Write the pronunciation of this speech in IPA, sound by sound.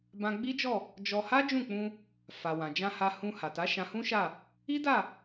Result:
b ã˧ ɡ͡b i˦ d͡ʒ ɔ˦˨ | d͡ʒ ɔ˧ h a˦ d͡ʒ ũ˦˨ k͡p ũ˧ | f a˨ w ã˨ d͡ʒ ã˧ h a˧ h ũ˧ h a˨ t a˨˦ ʃ ã˧ h ũ˦ ʃ a˦˨ | i˦ d a˦˨

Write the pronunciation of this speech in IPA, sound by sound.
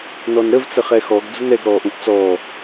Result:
n ɔ n ɾ ə v t͡s ə χ ɛ x ɔ ɡ d͡z ʊ n ɛ ɡ ɾ ɔː ʔ ũ ʔ t͡s ɔː

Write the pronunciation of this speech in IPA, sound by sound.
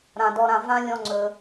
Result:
ɾ ã˨ d ɔ˧ ɾ ã˧ v ã˦ lʲ ɔ̃˦ ŋ͡ǀ ɵ˧

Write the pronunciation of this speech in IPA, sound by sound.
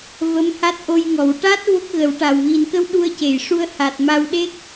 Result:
v ə˧˥ m h a˦˥ t̚ ʔ o˧ j ŋ ɔ˨˩˨ w ʈ a˦˥ t̚ v o˦˥ k̚ ɣ ə˨˩˦ w ʈ a˨˩ w ɣ i˨˩ n k ə˧ w ɗ u˧ ə̯ c e˨˩˨ j ʂ u˧ ə̯ h a˨˩ t̚ m a˧ w ɗ e˦˥ k̚

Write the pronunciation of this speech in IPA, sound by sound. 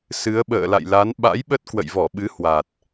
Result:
s ɨ˨˦ ə̯ ɓ ə̰ː˧˨ l a̰˧˨ j l a˨˦ n ɓ a̰˧˥ j ɓ ə˦˥ t̚ k w ə̰˧˨ j v ɔ˧˩ ɓ ɨ˨˦ h w a˨˩ t̚

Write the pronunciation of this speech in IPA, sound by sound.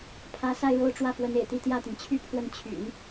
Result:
pʰ ä˧˥ s a˥˧ ɪ̯ ɻ o˥˧ ʊ̯ ʈ͡ʂ w ä˥˩ f w ə˧˥ n ḛ˨˩ ɪ̯ t̪ i˥˧ t̪ j ä˥˩ t̪ i˩ ŋ t͡ɕʰ y˥ pʰ w ə˥˩ n t͡ɕʰ y̰˨˩˦ n

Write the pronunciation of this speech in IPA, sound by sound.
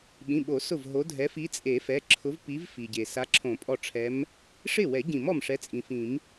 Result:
ɓ ĩ˩˧˩ ɓ o˨˩˦ s ʊ˧˩ v ɦ o˨˦ dʱ ɛ˨˦ f i˨˦ t͡sʼ e˨˩˦ f ɛ˩˧˩ ǁʰ ʊ˨˦ v p i˨˦ v f i˩ ɟ e˩ s a˨˦ ǁʰ õ˨˩˦ pʼ ɔ˧˩ ʈ͡ʂʰ ɛ˨˦ m | ʂ ɪ˥˩ w ɛ˨˩˦ ɟ ĩ˨˩˦ m ɔ˧˩ m ʂ ɛ˨˦ t͡sʼ ĩ˩ f ĩ˨˩˦ m

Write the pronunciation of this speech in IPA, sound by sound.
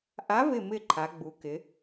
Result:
ʔ a˧˥ v ɪ˦˨ m ɪ˦˨ ǃʰ a˧˥ ɡ͡b u˧˥ k ɪ˧˥

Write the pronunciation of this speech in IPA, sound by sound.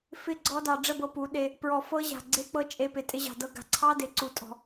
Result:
f ɪ˦˨ ɡ͡ǀ ɔ˧ d ɑ˨ ɖ͡ʐ ə˦˨ b ɤ˧ p u˨˦ ɗ e˧ | p ɹ ɔ˨ f ɤ˦ ʑ a̤˨ ɡ͡ǀ e˦ k͡p ɤ˦ t͡ʃʼ e˧ p ɪ˨ tʼ ɪ˧ ʑ ɑ̤˨ d ɤ˧ ɡ a̤˨ ǀʰ ɑ˦ d e˨ ǀ u˧ tʼ ɔ̤˧

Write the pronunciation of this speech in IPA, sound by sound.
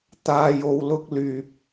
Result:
t̪ aː˧ j o˧ w l ʊ˥ k̚ l yː˧ p̚

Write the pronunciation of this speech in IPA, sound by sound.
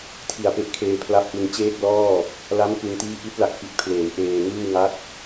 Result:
tʰ i˨˩ a̯ p e˦˥ ʔ kʰ eː˧ pʰ l a˦˥ p̚ ʔ ɯ˧ ŋ t͡ɕ eː˥˩ k̚ l ɔː˥˩ | l a˦˥ m k ɯ˧ ŋ t iː˥˩ ʔ i˦˥ t̚ l a˨˩ k̚ p i˨˩ t̚ pʰ l eː˩˦ w ʔ eː˧ ŋ ɯː˥˩ w ŋ a˦˥ t̚

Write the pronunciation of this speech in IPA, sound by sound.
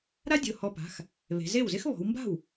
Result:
ɾ a˥ dʲ ʊ˩˧˩ h ɔ˧ p a̤˩˧˩ x | β e̤˩˧ z e˥˩ w z ɪ˥ x β ɔ̤˩˧ w m b a̤˥˩ w

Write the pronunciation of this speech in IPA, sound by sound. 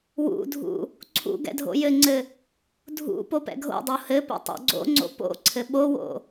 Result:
w ṵ dʱ ṵ | ǀʰ ṵ ɡ ɛ̰ dʱ o̰ j ɘ ŋ͡ǀ ɘ | dʱ ṵ p o p ɛ̰ ɡʱ o̰ dˤ o h ɘ p ɛ̰ tˤ o̰ ɡ͡ǀ o̰ ŋ͡ǀ o̰ p o̰ ǀʰ ɘ ɓ o w o̰

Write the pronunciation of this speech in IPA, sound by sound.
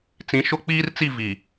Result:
t͡s ĩ˨˦ ʃ ʊ˦ k͡p iː˦ r t͡s i˦˨ v i˨

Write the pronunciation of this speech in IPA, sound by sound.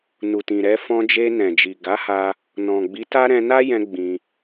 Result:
n u˨ t ĩ˨ ɾ ɛ˧ f ɔ̃˧ d͡ʒ e˧ n ɛ̃˨ d͡ʒ i˨ ɡ a˨˦ h a˧ | n ɔ̃˨ ɡ͡b i˨˦ t a˦ ɾ ɛ̃˧ n a˦ j ɛ̃˧ ɡ͡b ĩ˧

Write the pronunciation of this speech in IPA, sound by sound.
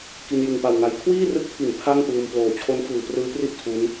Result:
k i˧ n j ɯ˨˩ ŋ p a˨˩ w ŋ a˧ j kʰ w iː˥˩ r ɯ˦˥ k̚ pʰ i˩˦ n pʰ a˥˩ ŋ p ɯː˧ m p l oː˨˩ t͡ɕʰ o˦˥ n f ɯː˨˩ p r ɯː˦˥ p r i˥˩ ʔ tʰ u˦˥ n

